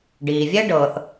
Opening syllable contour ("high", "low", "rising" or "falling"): low